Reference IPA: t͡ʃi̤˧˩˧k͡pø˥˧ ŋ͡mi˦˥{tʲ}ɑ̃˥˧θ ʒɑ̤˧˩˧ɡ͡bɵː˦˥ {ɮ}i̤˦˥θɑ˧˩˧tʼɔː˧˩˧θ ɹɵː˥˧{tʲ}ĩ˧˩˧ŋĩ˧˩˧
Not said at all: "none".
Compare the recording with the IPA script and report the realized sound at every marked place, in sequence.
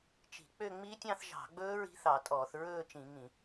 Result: tʲ, ɹ, t͡ʃ

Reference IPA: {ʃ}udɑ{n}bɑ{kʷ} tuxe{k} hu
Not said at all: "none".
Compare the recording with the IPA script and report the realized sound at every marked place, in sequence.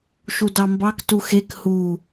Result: ʃ, m, k, k

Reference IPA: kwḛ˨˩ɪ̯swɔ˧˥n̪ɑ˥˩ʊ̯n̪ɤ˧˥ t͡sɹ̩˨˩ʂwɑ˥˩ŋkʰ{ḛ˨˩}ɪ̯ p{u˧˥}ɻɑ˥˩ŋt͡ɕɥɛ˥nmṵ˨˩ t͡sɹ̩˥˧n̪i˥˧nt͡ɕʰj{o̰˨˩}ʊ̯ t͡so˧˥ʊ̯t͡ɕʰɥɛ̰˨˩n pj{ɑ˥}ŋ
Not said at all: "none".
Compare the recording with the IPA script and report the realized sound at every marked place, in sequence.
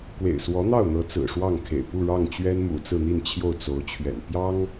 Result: ḛ˨˩, u˥˧, o˥˩, ɑ˥

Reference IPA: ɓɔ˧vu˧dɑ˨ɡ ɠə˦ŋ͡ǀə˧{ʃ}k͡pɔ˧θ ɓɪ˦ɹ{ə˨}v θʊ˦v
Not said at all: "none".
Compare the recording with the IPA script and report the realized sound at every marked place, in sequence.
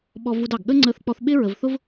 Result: θ, ə˨

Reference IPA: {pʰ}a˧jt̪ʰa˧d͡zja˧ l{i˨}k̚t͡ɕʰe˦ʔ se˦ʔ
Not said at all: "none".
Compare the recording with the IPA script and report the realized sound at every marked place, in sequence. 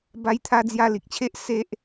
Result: b, i˨

